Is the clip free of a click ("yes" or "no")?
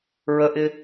yes